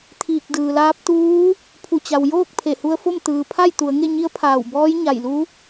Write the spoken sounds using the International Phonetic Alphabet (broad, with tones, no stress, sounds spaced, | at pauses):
t̪ʰ iː˧˩ k̚ d ɯː˩ l aː˧˥ p̚ t̪ uː˧˥ | pʰ u˧˩ t͡ɕ a˩ w j oː˥˨ k̚ pʰ e˧˩ h u˧ ə̯ f o˥˨ m t̪ ɯː˩ pʰ a˥˨ j t̪ u˩˧ ə̯ ŋ e˥˨ ɲ i˧˥ ə̯ pʰ aː˧˩ w b ɔː˧˥ j ɲ a˧˩ j l u˧˥